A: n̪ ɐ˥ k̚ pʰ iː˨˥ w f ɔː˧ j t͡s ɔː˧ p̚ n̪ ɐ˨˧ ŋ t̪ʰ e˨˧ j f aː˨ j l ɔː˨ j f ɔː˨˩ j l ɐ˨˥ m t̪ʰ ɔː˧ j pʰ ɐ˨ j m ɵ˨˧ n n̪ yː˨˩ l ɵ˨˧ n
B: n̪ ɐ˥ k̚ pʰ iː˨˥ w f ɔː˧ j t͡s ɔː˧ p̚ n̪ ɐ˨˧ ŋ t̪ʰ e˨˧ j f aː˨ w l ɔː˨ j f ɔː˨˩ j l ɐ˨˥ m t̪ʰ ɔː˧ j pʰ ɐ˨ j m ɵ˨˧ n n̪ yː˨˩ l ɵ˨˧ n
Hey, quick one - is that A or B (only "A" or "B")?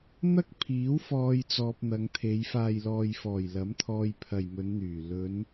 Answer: A